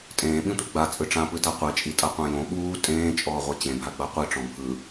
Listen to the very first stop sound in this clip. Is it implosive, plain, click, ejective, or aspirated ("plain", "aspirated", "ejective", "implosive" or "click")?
ejective